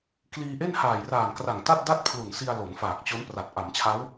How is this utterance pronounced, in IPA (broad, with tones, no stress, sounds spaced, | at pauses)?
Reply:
k l iː˧ ʔ e˥˩ n h aː˨˩ j r aː˨˩ n k r a˨˩ ŋ t a˥˩ t̚ d a˥˩ t̚ pʰ l u˨˩ n s i˧ a̯ l o˩˦ n f aː˨˩ k̚ t͡ɕ o˦˥ n p r a˨˩ t̚ ʔ a˩˦ m t͡ɕʰ a˦˥ w